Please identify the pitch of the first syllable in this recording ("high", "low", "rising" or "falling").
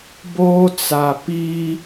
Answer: high